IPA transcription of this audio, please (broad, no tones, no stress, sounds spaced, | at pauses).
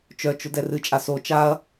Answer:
t͡ʃ œ t͡ʃ ʊ d ɛ r ɨ t͡ʃʼ a s o t͡ʃ a ɐ̯